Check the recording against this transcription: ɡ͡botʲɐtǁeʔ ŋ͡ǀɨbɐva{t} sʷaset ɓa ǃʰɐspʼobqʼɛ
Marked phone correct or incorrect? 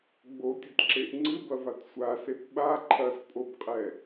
correct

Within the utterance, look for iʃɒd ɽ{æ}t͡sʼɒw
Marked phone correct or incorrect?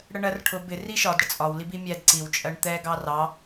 incorrect: ə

